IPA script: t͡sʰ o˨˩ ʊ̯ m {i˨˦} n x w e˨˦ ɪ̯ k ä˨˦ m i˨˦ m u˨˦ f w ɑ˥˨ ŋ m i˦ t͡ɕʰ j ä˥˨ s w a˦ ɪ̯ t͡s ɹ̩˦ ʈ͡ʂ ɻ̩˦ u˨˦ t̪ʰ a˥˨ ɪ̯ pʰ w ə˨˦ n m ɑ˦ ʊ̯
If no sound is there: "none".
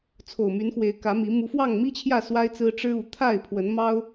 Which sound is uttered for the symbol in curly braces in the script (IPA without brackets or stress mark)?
y˨˦